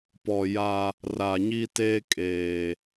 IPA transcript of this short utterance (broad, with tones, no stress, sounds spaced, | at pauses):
p ɔ˨ j a˦ | r a˨ ɲ i˦ t eː˦ kʼ eː˨